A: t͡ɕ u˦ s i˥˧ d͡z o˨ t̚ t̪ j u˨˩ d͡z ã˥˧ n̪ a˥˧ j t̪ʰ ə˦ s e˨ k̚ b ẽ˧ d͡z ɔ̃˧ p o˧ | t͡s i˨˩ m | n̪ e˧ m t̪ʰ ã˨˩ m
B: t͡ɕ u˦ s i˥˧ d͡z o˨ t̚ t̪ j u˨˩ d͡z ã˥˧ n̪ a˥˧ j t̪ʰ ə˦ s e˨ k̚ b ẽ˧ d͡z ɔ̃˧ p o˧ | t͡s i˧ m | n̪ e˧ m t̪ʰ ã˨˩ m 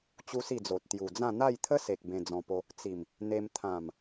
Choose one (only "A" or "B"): A